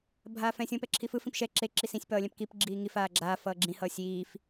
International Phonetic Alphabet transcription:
bʱ aː f ɛ̃ sʲ õ p ɛ ǁʰ i f ɯ f ĩ p ʃ ɛ ǁ e ǁ i s ĩ sʲ p ʌː lʲ ɛ̃ p k i p ɡ͡ǁ iː ŋ i f aː ɡ͡ǁ aː f ʌː ɡ͡ǁ ĩ h ʌː sʲ iː f

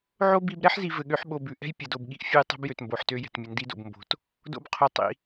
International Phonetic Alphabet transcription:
ʕ o˦ b i˧ b ɾ ɛ˦ ħ z i˨ v ɘ˨ ɠ ø˨˦ ħ ɓ o˨ b ʉ˨ ʔ ɛ̤˦ j pʲ ɐ˨ d o˨ b ɠ i˧ ʔ fʲ o˦ j tˤ o̤˦ b j ø˨ t m b o˨ ħ t ø˧ j ɛ̤˨ t mʲ ɘ˨ n d i˧ d o̰˨ b m b o̤˨ t | d o̰˦ b qʰ o˧ tˤ ḭ˧

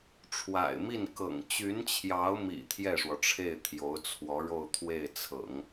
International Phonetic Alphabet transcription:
ʈ͡ʂʰ w a̰˨˩ ɪ̯ m i˥˩ n k ɤ̰˨˩ ŋ t͡ɕ y˧˥ n t͡ɕʰ j ɑ˧˥ ʊ̯ m ḭ˨˩ t̪ʰ j ɛ˥˩ ʂ w ɔ˩ ʈ͡ʂʰ e˥˩ ɪ̯ t̪ʰ j o˧˥ ʊ̯ t͡sʰ w ɔ˧˥ ɻ o˥˧ ʊ̯ t̪ʰ w e˥˩ ɪ̯ t͡sʰ ɤ̰˨˩˦ ŋ

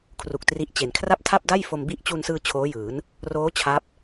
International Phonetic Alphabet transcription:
kʰ r u˨˩ k̚ t r i˦˥ ʔ t͡ɕ e˩˦ n kʰ r a˥˩ p̚ tʰ a˥˩ p̚ d a˥˩ j f o˧ m b i˦˥ ʔ t͡ɕ u˧ n s ɯː˧ t͡ɕʰ oː˦˥ j ɯː˩˦ n | r oː˦˥ t͡ɕʰ a˦˥ p̚

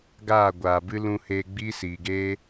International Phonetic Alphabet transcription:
ɡ aː˦˨ ɡʷ aː˨ b ɨ˦ l ũ˧ h eː˧ ɡ͡b iː˦ s iː˨ ɡ eː˦

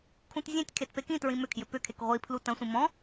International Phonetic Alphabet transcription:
kʰ ũ t zʲ ẽ tʲ kʰ e t p e k ĩ t ɹ ĩ m ʏ kʰ j ʏ p ʏ kʰ e k ʁʷ i pʰ l u t ɐ̃ sʷ ĩ m ɔ̃

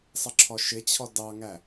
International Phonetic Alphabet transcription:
sˤ ə ǁʰ ɔ ʃ ɪ t͡ɕʰ ɔ d ɑ ŋ æ

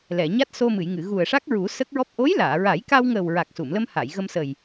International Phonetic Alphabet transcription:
l ɛ˨˩˨ ɲ a˦˥ t̚ s o˧ m ɨ˨˩˨ j ŋ ɨ˨˩˨ ɣ u˨˩ ə̯ ʂ a˦˥ k̚ ɹ u˨˩˦ s ə˦˥ k̚ ɹ ɔ˦˥ p̚ ʔ o˧˥ j l aː˨˩˨ ɹ a˨˩˦ j k a˧ w ŋ əː˨˩ w ɹ a˨˩ k̚ s u˨˩˨ m l ə˧ m h a˨˩˨ j ɣ ə˧ m s ə˨˩ j

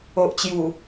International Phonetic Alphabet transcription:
o˨ ʔ t͡ɕ j u˨˩

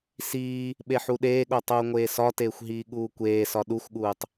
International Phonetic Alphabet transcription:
s iː | ɓ e ħ u ɗ eː ɠ o tˤ uː ŋʷ eː s ɒ t eː xʷ ɦ iː ɠ uː kʷ eː s ɒ ɗ u xʷ ɠ uː tˤ

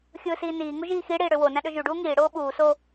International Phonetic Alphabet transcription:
xʲ ɯː s iː n iː ŋ u ʒ iː x i ɽ iː ɽ ø w o n æ̃ ɗ ø ʒ y ɖ uː ŋ iː ɽ oː ɓ uː s o

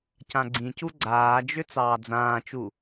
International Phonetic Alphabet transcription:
c ã ɡ͡ǀ ĩ c u ɡ͡ǀ aː d͡ʒ ʏ t͡s ɑː d͡z ãː t͡ʃ u

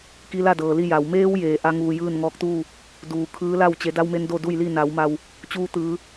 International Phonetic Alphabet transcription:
k i˧ l a˥˨ d ɤː˩ l i˥˨ j a˩ w m eː˧ w j eː˩ ʔ a˧ ŋ uː˩ j ɯː˥˨ n ŋ ɔː˧ k̚ t̪ uː˥˨ | d uː˩ kʰ ɯː˧˥ l a˥˨ w t͡ɕ e˩˧ d a˧ w m e˧ n d o˥˨ d u˥˨ j l i˥˨ n a˩˧ w m a˧ w | t͡ɕ uː˧ t̪ ɯː˩˧

